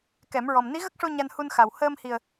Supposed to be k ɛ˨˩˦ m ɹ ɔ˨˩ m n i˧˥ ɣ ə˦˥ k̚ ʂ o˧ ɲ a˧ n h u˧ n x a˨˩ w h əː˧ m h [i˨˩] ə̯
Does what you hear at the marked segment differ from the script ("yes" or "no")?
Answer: no